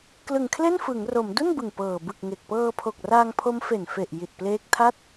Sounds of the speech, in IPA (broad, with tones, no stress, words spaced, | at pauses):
klɯ˨˩ŋkʰle˥˩nfɯ˩˦ŋro˩˦m du˥˩nbɯ˨˩ŋ pɤː˨˩ bɯ˨˩k̚ ŋe˨˩k̚ pɤː˧pʰo˨˩k̚raː˧ŋpʰo˦˥m fe˨˩nfe˨˩ʔ ji˨˩t̚pleː˦˥k̚tʰa˥˩t̚